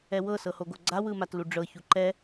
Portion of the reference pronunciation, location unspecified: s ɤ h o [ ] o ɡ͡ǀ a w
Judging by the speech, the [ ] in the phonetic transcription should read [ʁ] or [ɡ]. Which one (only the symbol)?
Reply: ɡ